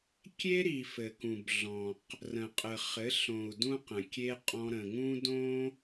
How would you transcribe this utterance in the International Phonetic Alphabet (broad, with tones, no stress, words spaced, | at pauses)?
kʲe˦ɾi˨ fɘ˨kũ˨bɮɔ̃˨q | rə̃˨qʼə˨ χɘ˨˦ɬõ˨u̯ dũ˦qə̃˨ kʲe˧ qʼɔ̃˧ɾə̃˨ŋũ˦ dõ˦